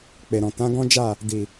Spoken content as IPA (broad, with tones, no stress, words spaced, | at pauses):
k͡pe˨ɾɔ̃˨ tã˨˦ɡɔ̃˦d͡ʒa˦˨ | di˨